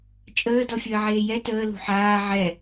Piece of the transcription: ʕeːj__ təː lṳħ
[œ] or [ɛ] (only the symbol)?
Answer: ɛ